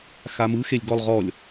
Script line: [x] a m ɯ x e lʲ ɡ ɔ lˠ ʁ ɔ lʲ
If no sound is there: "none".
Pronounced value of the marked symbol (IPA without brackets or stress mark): x